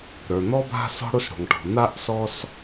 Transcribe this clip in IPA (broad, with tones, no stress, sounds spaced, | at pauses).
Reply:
ɾ ə˞˩ n̪ ɔ˧ b a̤˧ s ɔ̤˥ ɽ o˥ s ɽ o̤˩ ŋ ʈ ɔ̤˩ n̪ a˥ ʔ s ɔ˥ s